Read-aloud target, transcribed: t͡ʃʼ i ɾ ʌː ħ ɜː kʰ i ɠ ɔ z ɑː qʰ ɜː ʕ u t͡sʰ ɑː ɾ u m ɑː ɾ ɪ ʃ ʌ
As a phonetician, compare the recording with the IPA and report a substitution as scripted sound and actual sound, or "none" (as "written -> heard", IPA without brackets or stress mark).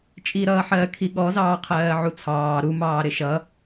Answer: none